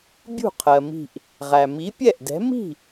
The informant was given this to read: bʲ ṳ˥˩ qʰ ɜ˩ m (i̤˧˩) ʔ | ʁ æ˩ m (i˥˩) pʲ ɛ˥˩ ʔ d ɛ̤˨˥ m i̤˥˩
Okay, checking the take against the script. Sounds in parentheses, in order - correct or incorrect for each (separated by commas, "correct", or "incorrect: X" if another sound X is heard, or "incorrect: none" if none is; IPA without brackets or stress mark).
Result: correct, incorrect: i˨˥